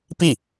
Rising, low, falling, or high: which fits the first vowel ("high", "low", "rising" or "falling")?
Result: falling